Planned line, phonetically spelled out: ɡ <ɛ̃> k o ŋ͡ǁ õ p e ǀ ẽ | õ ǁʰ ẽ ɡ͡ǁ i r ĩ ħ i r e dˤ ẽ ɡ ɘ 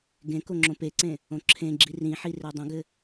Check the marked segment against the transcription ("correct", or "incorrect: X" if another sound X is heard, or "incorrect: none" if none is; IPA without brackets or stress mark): incorrect: ẽ